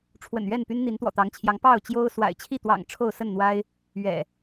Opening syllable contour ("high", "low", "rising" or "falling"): low